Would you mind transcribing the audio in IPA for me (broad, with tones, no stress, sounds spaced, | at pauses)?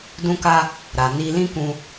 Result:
d ũ˧ k a˧ | ɾ a˨ n i˧ l ĩ˦ k ũ˧